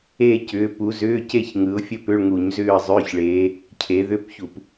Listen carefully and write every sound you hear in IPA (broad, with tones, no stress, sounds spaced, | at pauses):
e˥˧ c ʏː˨˦ p u˨˦ z ʏː˧˥˧ c e˥˧ ç ŋ ɯ˨˦ ʊ̯ fʲ ə˥˧ p ʏ˧˥˧ ɭ ŋ u˧˩˧ ɲ z ʏː˥˧ ə̯ zˤ ʏː˧˥˧ ç ɭ eː˨˦ | cʰ e˨˦ ð ʏ˧˥˧ p ç u˧˩˧ p